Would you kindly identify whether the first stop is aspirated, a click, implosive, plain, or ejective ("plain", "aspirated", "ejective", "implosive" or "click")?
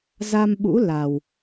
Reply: implosive